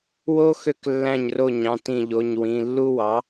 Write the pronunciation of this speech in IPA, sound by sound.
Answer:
w o˦ x ø˧˩ k lː æ̃˧˩ ɲ r o˧˩ ɲ ɑ̃˩˧˩ t ĩ˧˩ ʎ o˩˧˩ ɲ w ĩ˩˧˩ lː u˦ w ɑ˩˥

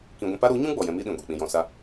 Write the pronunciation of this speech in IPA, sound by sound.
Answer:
k ĩ˨ ɡʷ ɛ̃˧ p a˦ ɾ u˨˦ ɲ ũ˦ ɡ͡b ɔ˨ j ɛ̃˧ m i˦ ɗ ĩ˨ ɡʷ e˨ k͡p ĩ˨ j ɔ̃˨ s a˧

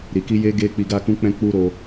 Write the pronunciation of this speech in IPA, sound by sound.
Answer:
ɾ i˨ k i˧ j e˧ ɡ e˧ k͡p i˧ ɡ a˦ k ũ˦ k͡p ɛ̃˦ k͡p u˦ ɾ o˧

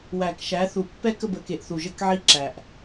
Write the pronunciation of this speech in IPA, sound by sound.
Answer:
w æ˨ k ʃ æ˨˦ θ u˨ pː ɛ˦ k ə˦˨ b ə˨˦ k e˨ ʔ θ u˨ ʒ ə˦˨ k ʕ i˦ ǁ æ˨ ʔ

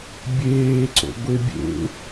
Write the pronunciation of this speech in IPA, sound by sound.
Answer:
bʲ eː ǀ o̰ ɡʷ e bʲ ḛ

